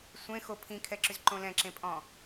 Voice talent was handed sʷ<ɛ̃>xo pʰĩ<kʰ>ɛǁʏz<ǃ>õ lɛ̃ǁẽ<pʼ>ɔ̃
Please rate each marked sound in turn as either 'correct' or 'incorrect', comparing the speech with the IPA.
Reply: incorrect: ẽ, correct, correct, correct

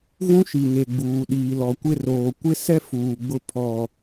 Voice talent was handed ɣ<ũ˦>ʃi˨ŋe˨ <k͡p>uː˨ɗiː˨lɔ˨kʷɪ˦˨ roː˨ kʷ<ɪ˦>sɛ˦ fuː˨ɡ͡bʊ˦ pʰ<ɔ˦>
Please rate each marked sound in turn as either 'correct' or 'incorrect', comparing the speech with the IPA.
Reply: correct, incorrect: ɡ͡b, correct, incorrect: ɔ˨

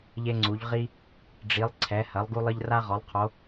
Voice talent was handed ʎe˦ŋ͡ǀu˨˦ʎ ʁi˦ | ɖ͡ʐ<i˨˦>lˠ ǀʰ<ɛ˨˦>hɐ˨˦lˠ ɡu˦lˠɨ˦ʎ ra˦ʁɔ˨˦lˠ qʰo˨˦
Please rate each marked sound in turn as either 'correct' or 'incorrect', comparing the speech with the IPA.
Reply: correct, correct

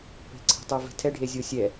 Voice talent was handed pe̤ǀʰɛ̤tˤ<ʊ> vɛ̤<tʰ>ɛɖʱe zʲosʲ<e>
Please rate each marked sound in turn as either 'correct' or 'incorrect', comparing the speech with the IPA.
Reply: incorrect: u, correct, incorrect: ɛ

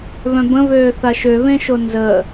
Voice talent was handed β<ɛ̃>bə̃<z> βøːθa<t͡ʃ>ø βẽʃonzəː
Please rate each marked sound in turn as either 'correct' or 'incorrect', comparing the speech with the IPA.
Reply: incorrect: œ̃, incorrect: none, incorrect: ʃ

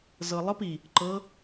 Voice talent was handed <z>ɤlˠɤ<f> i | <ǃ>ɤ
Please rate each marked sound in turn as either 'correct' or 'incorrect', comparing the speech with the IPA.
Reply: correct, incorrect: p, correct

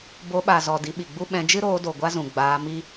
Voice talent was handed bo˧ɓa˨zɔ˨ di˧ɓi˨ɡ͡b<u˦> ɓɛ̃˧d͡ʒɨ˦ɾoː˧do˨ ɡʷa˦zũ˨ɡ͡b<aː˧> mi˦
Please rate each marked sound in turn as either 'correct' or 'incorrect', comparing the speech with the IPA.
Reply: correct, correct

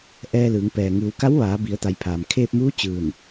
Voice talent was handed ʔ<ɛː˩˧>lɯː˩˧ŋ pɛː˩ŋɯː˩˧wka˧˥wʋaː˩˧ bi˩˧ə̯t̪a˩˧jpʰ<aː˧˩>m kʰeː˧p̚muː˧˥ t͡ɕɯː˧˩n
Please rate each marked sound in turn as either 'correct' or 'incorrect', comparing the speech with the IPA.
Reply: incorrect: ɛː˧, incorrect: aː˩

